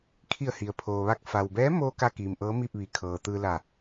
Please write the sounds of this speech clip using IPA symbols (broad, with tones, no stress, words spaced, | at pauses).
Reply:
kʰi˧˩ə̯hi˩ə̯pʰoː˩ʋa˧k̚ fa˩wbɛː˧˥moː˧ ka˥˨kiː˩mʔɤː˧˥miː˥˨p̚ ʋi˩ kʰɤː˩t̪ɯː˧la˧˩